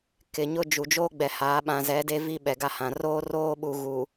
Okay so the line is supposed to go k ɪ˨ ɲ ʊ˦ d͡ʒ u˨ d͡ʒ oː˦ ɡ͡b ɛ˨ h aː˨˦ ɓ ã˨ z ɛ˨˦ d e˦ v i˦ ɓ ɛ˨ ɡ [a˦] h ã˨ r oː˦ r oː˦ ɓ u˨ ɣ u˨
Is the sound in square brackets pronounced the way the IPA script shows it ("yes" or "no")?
yes